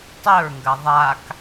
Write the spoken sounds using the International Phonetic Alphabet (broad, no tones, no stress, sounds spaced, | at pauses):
tˤ ɵ ɹ ŋ ɡ ɐ ðˤ a k